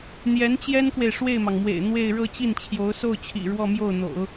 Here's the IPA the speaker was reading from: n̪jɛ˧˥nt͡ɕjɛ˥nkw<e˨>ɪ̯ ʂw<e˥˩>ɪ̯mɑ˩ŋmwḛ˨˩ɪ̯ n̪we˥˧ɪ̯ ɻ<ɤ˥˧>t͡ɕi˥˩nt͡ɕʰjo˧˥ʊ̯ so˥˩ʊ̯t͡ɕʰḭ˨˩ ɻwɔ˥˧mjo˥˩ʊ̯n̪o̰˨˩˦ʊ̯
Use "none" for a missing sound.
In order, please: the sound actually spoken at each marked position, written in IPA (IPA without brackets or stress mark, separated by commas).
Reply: e˨, e˥˩, ɤ˥˧